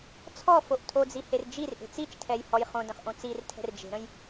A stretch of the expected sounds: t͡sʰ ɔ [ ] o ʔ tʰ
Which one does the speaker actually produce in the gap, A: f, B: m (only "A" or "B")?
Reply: A